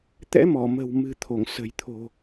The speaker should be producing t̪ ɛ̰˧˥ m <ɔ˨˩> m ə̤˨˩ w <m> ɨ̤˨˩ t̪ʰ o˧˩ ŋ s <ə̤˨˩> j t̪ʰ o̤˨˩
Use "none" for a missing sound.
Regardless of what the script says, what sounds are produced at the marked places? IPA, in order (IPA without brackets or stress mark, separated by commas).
ɔ˧˩, m, ə̤˨˩